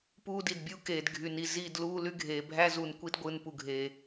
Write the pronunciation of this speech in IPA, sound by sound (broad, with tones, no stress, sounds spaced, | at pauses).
p uː˦ d i˨ d bʲ uː˦ k eː˨ d ɡʱ y˨ n i˨ z i˦˨ d l uː˦ l y˦ ɡʱ eː˨ bʱ æ˦ z u˨ n kʷ i˦ d ɡʷ ɯ˨ n p u˨ ɡʱ eː˨